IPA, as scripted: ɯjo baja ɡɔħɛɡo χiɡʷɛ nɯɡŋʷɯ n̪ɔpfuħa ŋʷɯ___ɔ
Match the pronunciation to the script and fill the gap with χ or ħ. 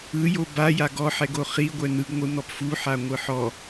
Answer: ħ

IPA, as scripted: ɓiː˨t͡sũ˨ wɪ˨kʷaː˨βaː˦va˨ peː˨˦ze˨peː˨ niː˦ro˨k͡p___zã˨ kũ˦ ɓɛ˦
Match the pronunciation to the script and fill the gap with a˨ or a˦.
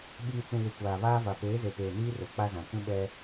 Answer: a˦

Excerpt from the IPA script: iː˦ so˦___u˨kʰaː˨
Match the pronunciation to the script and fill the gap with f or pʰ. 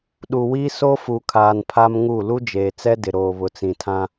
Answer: f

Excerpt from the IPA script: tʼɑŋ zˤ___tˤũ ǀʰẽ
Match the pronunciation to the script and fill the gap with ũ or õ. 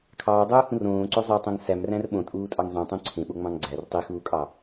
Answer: ũ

